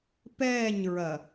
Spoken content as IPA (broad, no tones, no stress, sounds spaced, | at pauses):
p ɛː ɲ ɹ ɐ